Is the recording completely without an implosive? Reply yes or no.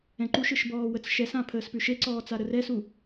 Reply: yes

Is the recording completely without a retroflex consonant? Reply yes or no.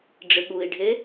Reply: no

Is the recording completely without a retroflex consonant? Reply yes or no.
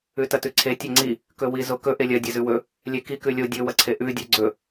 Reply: yes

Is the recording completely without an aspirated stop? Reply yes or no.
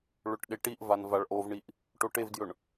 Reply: yes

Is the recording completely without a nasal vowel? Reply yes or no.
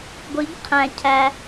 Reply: no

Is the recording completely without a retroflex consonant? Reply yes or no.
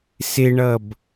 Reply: no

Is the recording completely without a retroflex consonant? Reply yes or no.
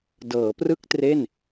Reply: yes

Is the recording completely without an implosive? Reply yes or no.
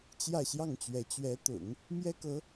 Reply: yes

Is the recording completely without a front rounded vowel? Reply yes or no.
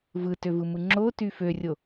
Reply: no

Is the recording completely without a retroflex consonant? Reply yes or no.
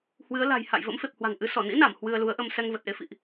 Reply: yes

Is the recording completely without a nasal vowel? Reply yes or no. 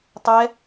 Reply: yes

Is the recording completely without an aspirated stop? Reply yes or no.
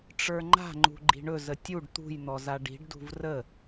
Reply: yes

